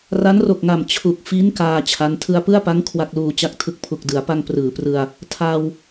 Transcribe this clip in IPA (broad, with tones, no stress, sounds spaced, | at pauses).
r a˦˥ n r o˨˩ k̚ ŋ a˨˩ m t͡ɕʰ u˨˩ k̚ f i˦˥ n k aː˧ t͡ɕʰ a˦˥ n tʰ ɯ˧ a̯ p ɯ˥˩ a̯ p a˦˥ ŋ kʰ w a˥˩ k̚ l uː˧ t͡ɕ a˥˩ k̚ tʰ ɯ˦˥ k̚ pʰ u˨˩ k̚ d ɯ˩˦ a̯ p a˧ ŋ p r ɯː˩˦ p r ɯ˧ a̯ | tʰ a˧ w